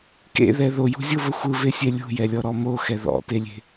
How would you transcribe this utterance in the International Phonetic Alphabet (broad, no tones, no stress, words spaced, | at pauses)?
kḛðɛ ðojṳzʲovə xʷɯvesʲɛ lʲṳjɛlʲɔɾɔ moxɛ ðɔ̰telʲe̤